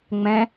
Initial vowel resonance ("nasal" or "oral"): nasal